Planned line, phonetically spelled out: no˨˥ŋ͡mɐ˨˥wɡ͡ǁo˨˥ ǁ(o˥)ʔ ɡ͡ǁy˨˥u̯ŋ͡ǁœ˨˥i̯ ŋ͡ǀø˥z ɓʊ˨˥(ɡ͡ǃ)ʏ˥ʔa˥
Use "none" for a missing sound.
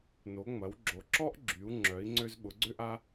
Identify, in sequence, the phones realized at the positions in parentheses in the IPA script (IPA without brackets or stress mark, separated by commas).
ɔ˥, ɡ͡ǀ